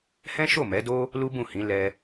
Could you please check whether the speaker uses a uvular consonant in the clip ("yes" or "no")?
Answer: no